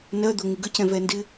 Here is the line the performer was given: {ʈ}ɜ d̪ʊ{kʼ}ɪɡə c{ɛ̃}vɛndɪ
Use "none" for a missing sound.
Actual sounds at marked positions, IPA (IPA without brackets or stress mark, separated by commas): n, ŋ, ɛ̃